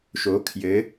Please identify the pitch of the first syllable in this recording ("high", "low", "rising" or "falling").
rising